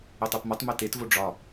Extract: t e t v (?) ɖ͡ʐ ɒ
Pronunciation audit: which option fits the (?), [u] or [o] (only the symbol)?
o